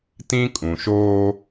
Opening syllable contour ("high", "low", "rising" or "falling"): high